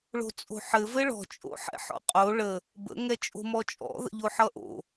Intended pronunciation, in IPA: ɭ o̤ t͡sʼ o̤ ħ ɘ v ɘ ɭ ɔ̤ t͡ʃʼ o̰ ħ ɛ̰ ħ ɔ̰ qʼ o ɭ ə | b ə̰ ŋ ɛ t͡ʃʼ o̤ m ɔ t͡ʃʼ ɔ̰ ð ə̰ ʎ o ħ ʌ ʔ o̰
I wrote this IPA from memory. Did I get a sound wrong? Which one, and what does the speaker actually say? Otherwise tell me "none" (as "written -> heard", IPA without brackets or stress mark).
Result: none